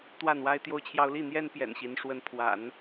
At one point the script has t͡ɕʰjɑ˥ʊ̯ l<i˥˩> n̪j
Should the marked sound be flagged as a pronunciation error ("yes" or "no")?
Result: no